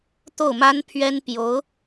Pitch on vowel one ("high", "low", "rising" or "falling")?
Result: falling